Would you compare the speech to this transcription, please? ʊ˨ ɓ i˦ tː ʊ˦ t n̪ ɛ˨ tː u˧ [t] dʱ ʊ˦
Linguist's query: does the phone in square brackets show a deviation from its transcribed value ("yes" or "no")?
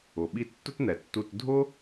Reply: no